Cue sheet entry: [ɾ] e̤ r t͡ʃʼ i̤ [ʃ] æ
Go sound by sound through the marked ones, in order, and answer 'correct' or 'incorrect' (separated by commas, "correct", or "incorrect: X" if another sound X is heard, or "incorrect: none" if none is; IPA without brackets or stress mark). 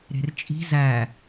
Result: correct, incorrect: z